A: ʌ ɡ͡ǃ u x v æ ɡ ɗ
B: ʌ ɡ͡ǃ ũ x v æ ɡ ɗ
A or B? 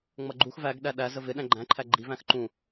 A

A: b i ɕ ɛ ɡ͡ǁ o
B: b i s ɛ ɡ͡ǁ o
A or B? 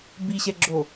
A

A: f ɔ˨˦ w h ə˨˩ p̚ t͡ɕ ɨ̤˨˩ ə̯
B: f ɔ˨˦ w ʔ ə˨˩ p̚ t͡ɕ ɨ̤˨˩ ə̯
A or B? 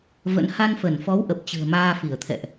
B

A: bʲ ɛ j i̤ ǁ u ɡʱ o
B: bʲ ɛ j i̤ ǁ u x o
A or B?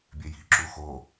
B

